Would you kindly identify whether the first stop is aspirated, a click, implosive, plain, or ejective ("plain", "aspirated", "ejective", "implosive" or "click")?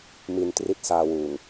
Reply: plain